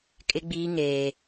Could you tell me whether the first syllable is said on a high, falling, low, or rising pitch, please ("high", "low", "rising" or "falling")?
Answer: high